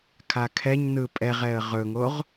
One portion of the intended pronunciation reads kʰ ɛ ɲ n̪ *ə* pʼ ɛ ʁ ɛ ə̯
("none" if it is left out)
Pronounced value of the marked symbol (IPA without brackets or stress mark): ɯ